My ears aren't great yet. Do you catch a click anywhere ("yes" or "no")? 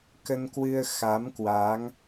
no